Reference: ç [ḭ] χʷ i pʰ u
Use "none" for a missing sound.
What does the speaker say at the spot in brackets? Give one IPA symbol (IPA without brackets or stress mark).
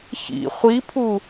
ḭ